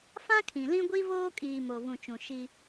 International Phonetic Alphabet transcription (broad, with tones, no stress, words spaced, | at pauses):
fã˦kʰĩ˨lĩ˦ ɡʷi˦voː˦kʼiː˨ mo˨vũ˨t͡ʃũ˨ ʃi˦